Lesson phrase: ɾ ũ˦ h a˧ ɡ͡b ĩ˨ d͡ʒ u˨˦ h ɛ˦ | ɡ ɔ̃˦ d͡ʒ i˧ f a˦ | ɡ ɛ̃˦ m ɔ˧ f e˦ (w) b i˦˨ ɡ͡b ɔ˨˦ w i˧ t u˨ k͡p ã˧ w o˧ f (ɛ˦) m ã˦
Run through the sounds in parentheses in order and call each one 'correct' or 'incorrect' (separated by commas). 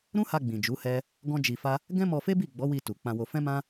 incorrect, incorrect